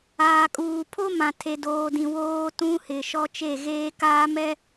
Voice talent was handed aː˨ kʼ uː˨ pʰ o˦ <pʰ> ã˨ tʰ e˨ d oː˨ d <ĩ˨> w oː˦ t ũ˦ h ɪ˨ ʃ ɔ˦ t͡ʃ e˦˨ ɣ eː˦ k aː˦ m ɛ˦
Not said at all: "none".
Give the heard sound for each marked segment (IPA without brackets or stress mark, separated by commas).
m, ĩ˨